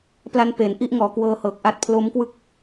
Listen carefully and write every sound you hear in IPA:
p l a˦˥ n p e˩˦ n ʔ i˥˩ ʔ ŋ ɔː˩˦ k w ɤː˧ h ɤː˨˩ k̚ ʔ a˦˥ t̚ pʰ l o˦˥ m k w ɯ˥˩ k̚

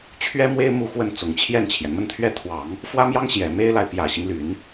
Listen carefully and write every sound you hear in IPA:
t͡ɕʰ ɥ ɛ˥ m w e˥ ɪ̯ m u˥˧ x w ə˥˩ n t͡s ʊ˨˩ ŋ t͡ɕʰ j ɛ˥˩ n t͡ɕʰ j ɛ˩ n m ə˥˩ n t̪ʰ ɥ ɛ˥ t̪ʰ w ɑ˨˩˦ ŋ | f w ä˥ m j ɑ˥ ŋ ɕ j ɛ˨˩ m e˥ ɪ̯ l a˨ ɪ̯ p j ä˨˩ ɕ i˦ ŋ l y˨˩˦ n

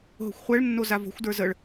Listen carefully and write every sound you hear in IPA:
ɦ o̤ xʷ χʷ ɛ ɭ nː o z a v o̤ xʷ d ə˞ z ə ɭ

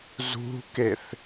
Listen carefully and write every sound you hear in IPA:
z ṳ k e θ

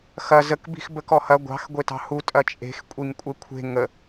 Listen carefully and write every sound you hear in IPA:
x ɐ z ə k b i̤ x b ə k ɔ h ɐ ɡʷ ɑ̤ x ɡʷ e t ɑ̤ h u tʼ ɐ t͡ʃʼ e̤ x kʷʼ i ŋ kʷʼ e kʷʰ e̤ ŋ ə

